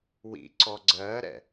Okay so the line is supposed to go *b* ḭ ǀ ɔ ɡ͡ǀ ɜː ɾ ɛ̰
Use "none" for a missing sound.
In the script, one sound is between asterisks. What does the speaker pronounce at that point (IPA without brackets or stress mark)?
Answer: w